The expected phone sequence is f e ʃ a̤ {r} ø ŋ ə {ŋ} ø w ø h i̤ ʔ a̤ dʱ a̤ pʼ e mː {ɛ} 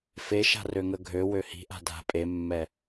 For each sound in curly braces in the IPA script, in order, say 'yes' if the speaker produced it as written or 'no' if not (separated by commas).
yes, no, yes